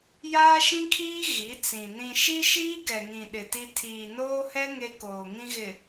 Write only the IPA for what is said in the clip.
jaː˦ʃĩ˦kʰiː˦ ɣi˨˦t͡sĩ˨ nĩ˨ʃi˦ʃiː˦ ɡɛ˨ŋĩ˨ ɗɪ˨ti˦ tʰiː˨noː˦hɛ˦ ŋe˦koː˨ŋĩ˦ɣɪ˨

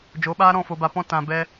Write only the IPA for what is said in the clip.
d͡ʒo˨˦ɓaː˦ ɾɔ̃˦˨fo˨ba˨ pɔ̃˧ tã˨ bɛ˧

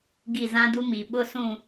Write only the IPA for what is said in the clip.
ɡi˦˨ zã˦du˦ mi˨ ɓʊ˦ sũ˦˨

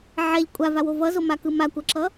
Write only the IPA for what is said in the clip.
ʕɛʎ kʷʼavawo vʌzomakɯ makʷʌǁʌ

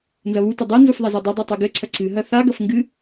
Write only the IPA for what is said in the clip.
nzɐβutɘ dˤɛnzuf ðˤɛzɛdˤɐdˤi tˤɘɡɘǀʰɐ ǀɨɦɐ θaɡɐf ŋɡɨ

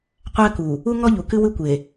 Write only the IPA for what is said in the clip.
qʷæ˦ku˨ | u˦ ŋɔ˦ʎu˨kɨ˦ wɨ˦kʷe˨

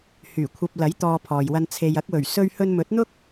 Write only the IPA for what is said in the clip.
hyː˨˩kʷʰɐ˧p̚lɐ˨˥j t̪ɔː˧pʰɔː˨jwɐ˧n t͡sʰe˨jɐ˨˥k̚wɵ˨˩ɥ sɵ˧ɥhɵ˧nmɵ˨˥t̚n̪ʊ˥k̚

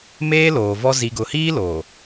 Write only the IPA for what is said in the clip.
meː˦loː˨vɔ˦ zi˨ɡʊ˨hiː˦ loː˨

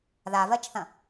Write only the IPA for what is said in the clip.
ðavɜt͡ʃθɐ̃

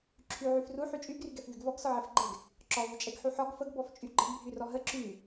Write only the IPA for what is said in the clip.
ǁʰy ʕyfru ħyt͡ʃʼy ɡryɡɛfvyɡvɔɡ sɔʕɛfɡ͡ǃɛɡ | ǁɔ vyt͡ʃʼɛɡħuħɔɡ fəɡ bɔft͡ʃʼyɡ͡ǃəɡ bʱyrɔɦə ǁy

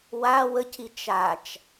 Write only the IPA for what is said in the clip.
wa wəci t͡ʃat͡ʃ

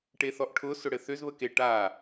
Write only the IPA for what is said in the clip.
ʈeθɔʔʈʰʊ sʊɽɘθʏz βəke ʈa

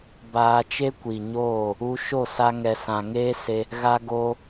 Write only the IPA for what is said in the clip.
baː˧t͡ʃe˦kʷi˨ɲoː˦˨ | u˧ ʃo˦˨sa˧ŋɛ˨sã˨ ŋeː˦se˧ | ɣa˧ɡo˧

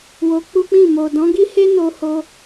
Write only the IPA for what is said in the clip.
wo˧k͡pu˦k͡pĩ˦˨ mo˨dɔ̃˨˦ɡi˦he˦ no˧ ho˧

